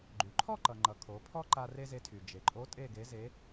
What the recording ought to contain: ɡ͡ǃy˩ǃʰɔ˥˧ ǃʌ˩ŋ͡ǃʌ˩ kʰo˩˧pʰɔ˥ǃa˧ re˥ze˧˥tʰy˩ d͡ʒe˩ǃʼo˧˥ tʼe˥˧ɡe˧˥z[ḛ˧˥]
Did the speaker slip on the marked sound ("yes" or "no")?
yes